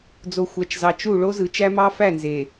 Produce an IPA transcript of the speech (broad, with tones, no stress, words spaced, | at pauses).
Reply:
d͡zo˨xʷæ˨t͡ʃzɑ˨ t͡ʃu˦˨ ɭo˦zɯ˨t͡ʃæ˦ mɑ˦fæ˦˨nze˨